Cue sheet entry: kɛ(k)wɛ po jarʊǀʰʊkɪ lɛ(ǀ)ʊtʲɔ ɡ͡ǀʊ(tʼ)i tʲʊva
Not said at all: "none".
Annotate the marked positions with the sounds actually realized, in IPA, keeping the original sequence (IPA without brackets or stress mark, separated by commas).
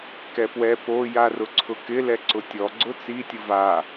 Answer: p, ǀ, t͡s